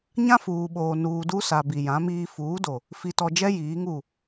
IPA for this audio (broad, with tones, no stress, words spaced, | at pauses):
ɲã˦ fuː˨ɓoː˨ nuː˨du˦sa˨ bi˨jã˨˦miː˦ fuː˨˦do˨ | fi˨tɔ˨ d͡ʒɛ˦ jiː˨˦ŋu˦˨